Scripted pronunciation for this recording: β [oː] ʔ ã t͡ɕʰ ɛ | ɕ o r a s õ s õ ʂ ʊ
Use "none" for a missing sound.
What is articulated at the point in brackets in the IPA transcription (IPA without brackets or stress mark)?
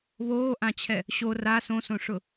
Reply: oː